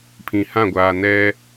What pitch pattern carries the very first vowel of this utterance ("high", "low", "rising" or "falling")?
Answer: low